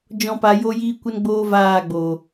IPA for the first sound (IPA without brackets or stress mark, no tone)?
d͡ʒ